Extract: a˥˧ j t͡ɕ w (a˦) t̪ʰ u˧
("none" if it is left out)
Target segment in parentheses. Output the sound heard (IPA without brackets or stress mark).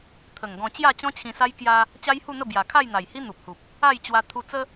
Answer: a˧